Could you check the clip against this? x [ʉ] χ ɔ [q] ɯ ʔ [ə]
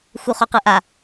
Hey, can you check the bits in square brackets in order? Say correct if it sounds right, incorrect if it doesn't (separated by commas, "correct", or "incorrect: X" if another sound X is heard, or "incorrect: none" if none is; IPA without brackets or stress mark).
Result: incorrect: u, correct, incorrect: a